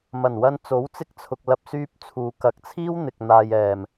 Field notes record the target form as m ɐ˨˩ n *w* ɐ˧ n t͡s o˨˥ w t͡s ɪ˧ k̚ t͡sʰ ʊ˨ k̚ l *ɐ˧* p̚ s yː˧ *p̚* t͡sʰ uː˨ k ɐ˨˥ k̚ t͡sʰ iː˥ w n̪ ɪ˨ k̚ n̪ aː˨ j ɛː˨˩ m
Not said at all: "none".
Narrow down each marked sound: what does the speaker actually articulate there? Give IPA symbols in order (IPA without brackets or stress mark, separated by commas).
w, ɐ˧, p̚